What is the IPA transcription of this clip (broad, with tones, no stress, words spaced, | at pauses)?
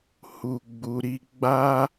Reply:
hu˨ ɡ͡bu˨ɾi˧ ɡ͡ba˦